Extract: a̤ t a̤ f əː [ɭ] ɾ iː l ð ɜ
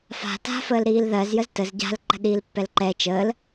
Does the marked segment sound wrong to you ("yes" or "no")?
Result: yes